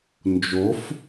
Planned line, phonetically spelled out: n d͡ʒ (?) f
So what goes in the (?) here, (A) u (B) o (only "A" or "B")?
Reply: B